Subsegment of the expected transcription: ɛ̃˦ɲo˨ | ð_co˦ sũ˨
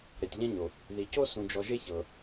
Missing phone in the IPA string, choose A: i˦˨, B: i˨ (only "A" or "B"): B